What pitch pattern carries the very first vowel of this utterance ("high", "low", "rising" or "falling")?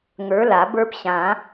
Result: rising